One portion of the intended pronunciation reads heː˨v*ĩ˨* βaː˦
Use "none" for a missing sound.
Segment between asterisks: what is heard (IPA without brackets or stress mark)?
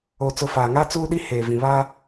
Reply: ĩ˨